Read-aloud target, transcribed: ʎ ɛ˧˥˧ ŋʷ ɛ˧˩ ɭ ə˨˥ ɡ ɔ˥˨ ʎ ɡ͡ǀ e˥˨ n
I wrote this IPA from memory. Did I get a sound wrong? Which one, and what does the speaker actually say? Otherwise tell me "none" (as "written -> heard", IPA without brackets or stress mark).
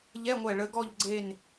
none